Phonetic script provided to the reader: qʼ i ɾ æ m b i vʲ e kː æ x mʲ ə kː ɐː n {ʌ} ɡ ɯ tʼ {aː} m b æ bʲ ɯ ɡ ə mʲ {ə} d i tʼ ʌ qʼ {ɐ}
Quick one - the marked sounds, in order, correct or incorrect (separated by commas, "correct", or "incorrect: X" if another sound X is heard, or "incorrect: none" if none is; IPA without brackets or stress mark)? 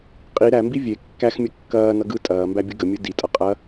correct, incorrect: ɐː, incorrect: ɯ, correct